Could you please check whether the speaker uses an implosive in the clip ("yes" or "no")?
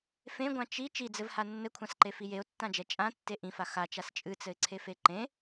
no